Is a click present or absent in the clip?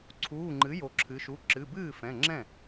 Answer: present